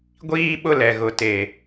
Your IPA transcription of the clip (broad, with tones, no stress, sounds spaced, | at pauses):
ɡʷ iː˦ ɓ ʊ˦ l ɛ˨ ɣ ʊ˨ t e˨